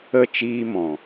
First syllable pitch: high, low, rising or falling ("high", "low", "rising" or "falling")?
falling